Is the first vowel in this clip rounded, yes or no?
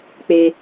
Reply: no